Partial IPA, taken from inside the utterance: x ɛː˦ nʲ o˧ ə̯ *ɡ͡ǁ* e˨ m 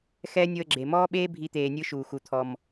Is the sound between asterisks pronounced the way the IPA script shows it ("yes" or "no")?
yes